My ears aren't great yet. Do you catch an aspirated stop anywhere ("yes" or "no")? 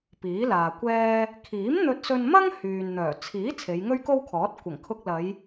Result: yes